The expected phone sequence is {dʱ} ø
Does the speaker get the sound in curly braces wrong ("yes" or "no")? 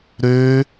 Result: yes